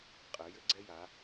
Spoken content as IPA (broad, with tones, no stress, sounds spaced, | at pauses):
qʼ ɘː˩˧ j ɘ˧ ɡ͡ǀ ɛ˧ j a˩˧